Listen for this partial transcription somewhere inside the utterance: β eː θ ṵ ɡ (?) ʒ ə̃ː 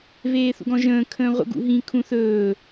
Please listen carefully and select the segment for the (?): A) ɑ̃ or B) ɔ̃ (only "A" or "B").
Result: B